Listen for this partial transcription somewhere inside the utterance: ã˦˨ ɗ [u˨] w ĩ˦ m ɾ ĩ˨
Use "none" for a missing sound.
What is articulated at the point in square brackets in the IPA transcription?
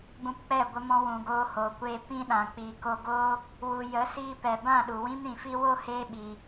u˨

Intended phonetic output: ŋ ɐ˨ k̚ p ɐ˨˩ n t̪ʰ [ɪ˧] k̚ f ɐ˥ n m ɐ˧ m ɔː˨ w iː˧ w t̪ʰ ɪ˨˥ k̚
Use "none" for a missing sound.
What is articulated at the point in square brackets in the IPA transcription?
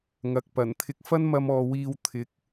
ɪ˧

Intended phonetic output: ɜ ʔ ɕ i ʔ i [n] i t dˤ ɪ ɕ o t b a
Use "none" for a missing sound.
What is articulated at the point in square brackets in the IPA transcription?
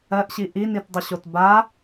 n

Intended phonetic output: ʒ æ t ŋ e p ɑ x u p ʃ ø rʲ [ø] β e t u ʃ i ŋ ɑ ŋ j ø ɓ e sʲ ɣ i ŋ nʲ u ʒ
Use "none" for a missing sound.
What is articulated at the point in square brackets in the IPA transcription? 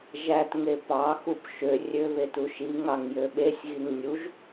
ø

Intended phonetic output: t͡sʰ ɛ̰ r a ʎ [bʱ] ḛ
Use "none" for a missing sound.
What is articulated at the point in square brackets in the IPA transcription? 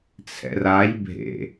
bʱ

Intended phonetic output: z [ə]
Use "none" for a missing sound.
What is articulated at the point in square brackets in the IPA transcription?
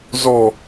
ɔ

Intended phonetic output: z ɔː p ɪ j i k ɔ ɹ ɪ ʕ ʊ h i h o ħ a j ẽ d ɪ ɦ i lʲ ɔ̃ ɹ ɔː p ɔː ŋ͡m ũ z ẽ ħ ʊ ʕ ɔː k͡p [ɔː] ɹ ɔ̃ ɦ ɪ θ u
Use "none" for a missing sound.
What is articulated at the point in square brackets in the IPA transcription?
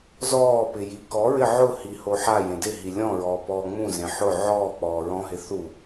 ɔː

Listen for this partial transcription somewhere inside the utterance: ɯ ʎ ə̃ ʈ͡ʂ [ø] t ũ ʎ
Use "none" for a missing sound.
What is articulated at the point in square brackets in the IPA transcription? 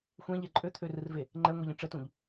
ə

